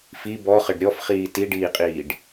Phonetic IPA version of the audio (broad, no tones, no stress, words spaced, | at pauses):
fi bɔχɘɖ ɾʲɔfχiː tiɖiːqʼiːɖ